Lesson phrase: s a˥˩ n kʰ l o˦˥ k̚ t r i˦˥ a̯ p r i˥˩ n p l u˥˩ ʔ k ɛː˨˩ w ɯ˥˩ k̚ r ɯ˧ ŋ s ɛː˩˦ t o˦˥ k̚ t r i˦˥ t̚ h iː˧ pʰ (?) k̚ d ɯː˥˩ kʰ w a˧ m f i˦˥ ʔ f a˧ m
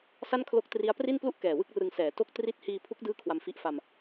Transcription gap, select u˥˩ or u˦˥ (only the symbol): u˦˥